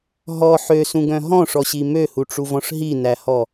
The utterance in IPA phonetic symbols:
ɦɔ ħøsũɡœ̃ ɦɔ̃ʂɔɕi møhuʈ͡ʂuvɔ̃ʂ ɦinæhɔ

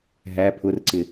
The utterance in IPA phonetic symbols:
ɦæ pʰʊrǀɪ

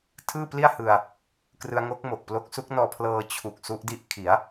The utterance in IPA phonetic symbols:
tʰɯː˥˩pli˥˩a̯hɯ˧a̯ | krɯ˧a̯ŋo˦˥k̚mo˨˩k̚plo˦˥k̚ su˦˥k̚nɔː˧pʰlɤː˧ t͡ɕʰu˨˩k̚ su˦˥ʔdi˦˥ʔ kʰi˩˦a̯

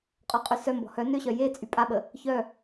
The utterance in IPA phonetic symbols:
qʼɔqʼysœmbɔ̤ hœ nøɕœ je t͡sʼypʼaɓə | çœ

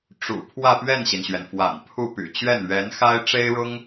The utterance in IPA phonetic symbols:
ʈ͡ʂṵ˨˩ pʰwä˥˧pɥɛ˥˩nɕi˩nɕɥɛ˩n fwa̰˨˩npʰu˥˩ py̰˨˩t͡ɕɥɛ˥˩n ɥɛ˧˥nxa˥ɪ̯ ʈ͡ʂe˥ɪ̯ɻʊ˥ŋ

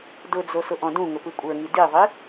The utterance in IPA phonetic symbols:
dʊd͡zo sʊʔɔ̃dũŋʊ pɯkʷʼə˞ŋi diðˤi

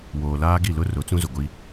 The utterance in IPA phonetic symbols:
woː˨laː˦ɡi˦˨ lʊ˦ rʊ˨˦t͡sũ˦zʊ˨ ɡʷi˦

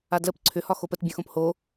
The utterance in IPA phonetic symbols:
adləp ǀʰʏ hɒxopət bʲœ̃xõpho

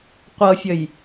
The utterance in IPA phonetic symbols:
qʷɤfʲəj

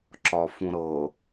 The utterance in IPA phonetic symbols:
ǁɒfũɾɤ

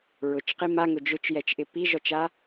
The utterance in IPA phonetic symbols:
ɹʊt͡ʃqi maŋʊ d͡ʒʊt͡ʃjɛt͡ʃʔɪ piʒɔt͡ʃa

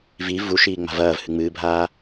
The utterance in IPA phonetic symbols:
vi vuʃiː ŋ͡ma̤vɐːvhɨ ŋ͡mɨːbʱaː

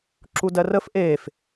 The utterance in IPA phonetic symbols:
ǁudɜrəf ʔef

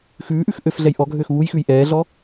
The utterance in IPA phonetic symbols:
xʉːʔʉx ʔøfɮɛj ʔɔɡʱøːx βujxʉj ʔɛːɮɔ

